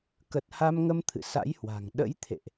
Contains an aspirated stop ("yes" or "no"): yes